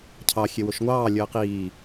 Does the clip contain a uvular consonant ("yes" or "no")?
yes